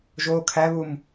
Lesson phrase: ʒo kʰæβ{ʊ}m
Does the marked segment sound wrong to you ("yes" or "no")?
yes